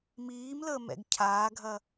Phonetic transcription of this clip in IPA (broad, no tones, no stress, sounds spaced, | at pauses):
m iː m l əː m ɛ̰ ɡ cʰ aː ɡʱ ɐ